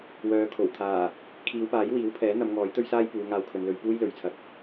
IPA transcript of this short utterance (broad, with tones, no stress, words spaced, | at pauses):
wœː˨˧kʰo˨˩w t̪ʰaː˨˩ | kʰiː˨˧wpaː˨˥jwiː˨˥w pʰɛː˨˥n̪ɐ˨˧m ŋɔː˨˥jt̪ɵ˥ɥsaː˥jpuː˨˧ ŋaː˧wkʰɵ˨nlɵ˧ɥ puː˥jlɵ˨ɥt͡sʰɐ˨˥k̚